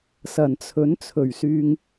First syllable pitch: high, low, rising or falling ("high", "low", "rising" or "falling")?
low